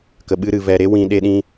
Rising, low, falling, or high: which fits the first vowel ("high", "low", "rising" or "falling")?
low